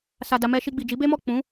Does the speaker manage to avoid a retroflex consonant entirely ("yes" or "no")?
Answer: yes